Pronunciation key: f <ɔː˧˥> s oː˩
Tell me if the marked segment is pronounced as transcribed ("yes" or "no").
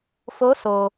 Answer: no